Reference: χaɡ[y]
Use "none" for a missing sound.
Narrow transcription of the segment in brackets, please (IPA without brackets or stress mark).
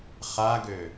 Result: ø